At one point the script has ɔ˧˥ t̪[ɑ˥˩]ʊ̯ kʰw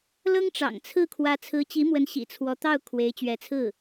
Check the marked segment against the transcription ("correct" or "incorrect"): correct